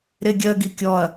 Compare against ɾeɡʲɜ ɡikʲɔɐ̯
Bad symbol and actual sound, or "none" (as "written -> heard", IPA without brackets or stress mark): none